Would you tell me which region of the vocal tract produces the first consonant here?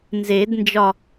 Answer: tongue tip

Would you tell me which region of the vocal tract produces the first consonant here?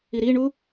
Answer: tongue tip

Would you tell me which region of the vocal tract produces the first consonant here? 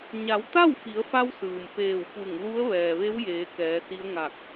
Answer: palate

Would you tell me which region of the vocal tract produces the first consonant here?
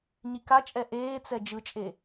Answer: palate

